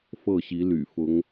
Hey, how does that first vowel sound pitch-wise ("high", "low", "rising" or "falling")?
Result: falling